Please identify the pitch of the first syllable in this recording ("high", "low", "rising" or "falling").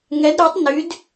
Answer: rising